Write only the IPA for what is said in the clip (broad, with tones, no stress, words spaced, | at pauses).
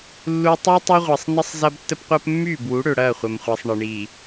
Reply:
lːu˨ tˤø˦tˤɐ˦ʁʷɐ˨sˤnə˦sˤ zɐ˦btːə˦pqʷəː˦p mːyː˦˨bwu˨˦ ɽø˨ɽɐː˦˨χʷɐ˨mχʷɐː˨sˤ ɳə˨ɳi˨